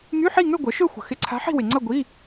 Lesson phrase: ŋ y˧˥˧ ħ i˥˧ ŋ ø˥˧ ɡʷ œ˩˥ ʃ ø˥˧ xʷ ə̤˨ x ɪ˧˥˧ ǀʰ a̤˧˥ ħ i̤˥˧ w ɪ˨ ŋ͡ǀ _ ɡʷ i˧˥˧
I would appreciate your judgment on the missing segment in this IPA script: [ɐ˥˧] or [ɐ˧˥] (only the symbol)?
ɐ˥˧